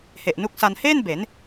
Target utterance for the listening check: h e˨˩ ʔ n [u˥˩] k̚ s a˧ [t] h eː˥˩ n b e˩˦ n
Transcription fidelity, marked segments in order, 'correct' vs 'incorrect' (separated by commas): incorrect, incorrect